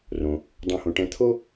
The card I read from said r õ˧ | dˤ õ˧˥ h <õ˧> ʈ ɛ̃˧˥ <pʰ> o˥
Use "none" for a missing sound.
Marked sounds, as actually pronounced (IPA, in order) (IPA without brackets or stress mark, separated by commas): õ˧, t̪ʰ